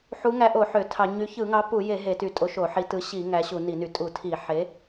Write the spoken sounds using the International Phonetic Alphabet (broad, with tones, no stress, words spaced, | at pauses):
ħu˨˥ŋæ˨˥ʔo˧˩˧ ħø˧˩˧tʰɑ˧˩˧ ɲy˨˥ çɯ˧˩˧ŋɑ˨˥ pu˧˩˧je˧˩˧ ɦe˧˩˧ty˧˩˧tʼo˨˥ ʃo˧˩˧ħi˨˥tɯ˨˥ ɕi˧˩˧ ŋæ˨˥ɕu˧˩˧ni˧˩˧ny˧˩˧ tʼu˧˩˧tʰi˧˩˧ ħe˨˥